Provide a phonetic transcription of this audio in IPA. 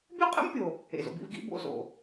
bʲ o˥ qʼ ḛ˥ m pʲ o˩ | ḛ˩ z o̰˧ b ḭ˧ v ɡ ḭ˥ b o̰˧ z o̰˩

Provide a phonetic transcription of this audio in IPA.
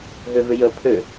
ɦ ø v ʏ j ə pʰ ø

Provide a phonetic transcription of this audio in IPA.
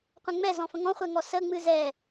qʷ ɛ̃ ŋ͡m ɛ z ɔ̃ f ə̃ ŋ ɔ̃ χʷ ɛ ŋ ɔ s ə ŋ͡m ɨ z ɛ

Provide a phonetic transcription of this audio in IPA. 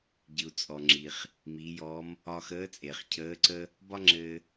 ɟ ɨ˩ u̯ t͡sʼ ɔ˩ ŋ͡ǁ i˩ χ | m i˩˧ j ɔ˧˥ m | ɒ˧ x əː˧˥ t͡sʼ eː˩ χ cʰ əː˧˥ ǀ ə˥ | b ɒ˥ ŋ͡ǁ ɘː˧

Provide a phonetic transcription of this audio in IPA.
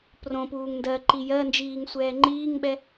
p r õ p uː ŋ n d ɜ ǃ i j ɜ n d͡ʒ iː ŋ sʷ ɛː ŋ͡ǃ iː ŋ ɓ ɛ

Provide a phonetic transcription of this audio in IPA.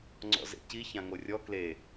ŋ͡ǀ ɔ̰ z ḛ c i ç ã ŋ o rʲ ɔ k l e

